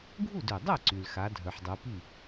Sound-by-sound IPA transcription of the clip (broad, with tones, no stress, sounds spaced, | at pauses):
ɡʱ u˥˩ d ø˩ dˤ ɛ˥˩ ǀ y˩ l x a˩˧ dʱ œ˩ ħ dˤ u˩˧ p i˥˩